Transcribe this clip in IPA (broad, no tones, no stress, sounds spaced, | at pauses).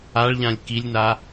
a ɭ ʎ ã lʲ k i lʲ n a